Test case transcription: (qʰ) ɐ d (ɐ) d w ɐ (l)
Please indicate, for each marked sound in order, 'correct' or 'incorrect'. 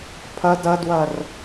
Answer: incorrect, correct, incorrect

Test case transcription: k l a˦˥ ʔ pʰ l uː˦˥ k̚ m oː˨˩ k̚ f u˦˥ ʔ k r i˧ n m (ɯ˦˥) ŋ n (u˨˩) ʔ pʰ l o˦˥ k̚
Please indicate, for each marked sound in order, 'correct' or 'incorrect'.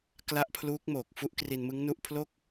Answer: correct, incorrect

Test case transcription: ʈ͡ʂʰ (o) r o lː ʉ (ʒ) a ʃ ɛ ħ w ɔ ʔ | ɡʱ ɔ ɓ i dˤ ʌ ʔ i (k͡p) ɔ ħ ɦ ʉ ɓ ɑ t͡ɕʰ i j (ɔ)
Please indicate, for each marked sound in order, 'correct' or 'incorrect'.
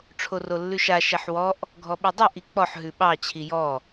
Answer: correct, incorrect, correct, correct

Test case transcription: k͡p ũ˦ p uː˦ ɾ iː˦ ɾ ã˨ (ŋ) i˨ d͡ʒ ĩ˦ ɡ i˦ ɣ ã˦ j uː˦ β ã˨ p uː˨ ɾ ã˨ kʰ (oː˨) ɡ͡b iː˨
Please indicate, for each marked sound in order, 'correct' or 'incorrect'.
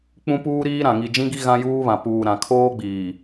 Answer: correct, incorrect

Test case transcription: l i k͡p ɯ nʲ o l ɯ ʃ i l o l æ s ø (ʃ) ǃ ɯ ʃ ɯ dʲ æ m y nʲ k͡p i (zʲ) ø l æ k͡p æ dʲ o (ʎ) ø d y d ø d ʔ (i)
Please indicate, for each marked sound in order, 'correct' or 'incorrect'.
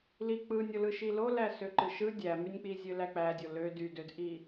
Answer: incorrect, correct, incorrect, correct

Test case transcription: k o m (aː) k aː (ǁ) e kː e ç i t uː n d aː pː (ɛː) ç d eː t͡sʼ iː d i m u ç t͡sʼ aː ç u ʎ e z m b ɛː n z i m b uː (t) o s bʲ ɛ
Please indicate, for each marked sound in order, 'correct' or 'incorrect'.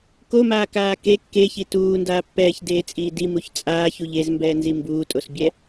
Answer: correct, incorrect, correct, incorrect

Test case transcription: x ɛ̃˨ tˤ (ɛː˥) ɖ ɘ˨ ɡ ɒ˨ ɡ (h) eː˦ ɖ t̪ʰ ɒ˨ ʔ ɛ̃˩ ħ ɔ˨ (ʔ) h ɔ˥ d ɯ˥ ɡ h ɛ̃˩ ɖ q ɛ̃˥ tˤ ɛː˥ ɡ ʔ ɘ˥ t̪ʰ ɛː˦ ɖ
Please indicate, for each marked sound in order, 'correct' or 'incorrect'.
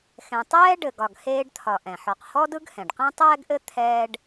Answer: correct, correct, incorrect

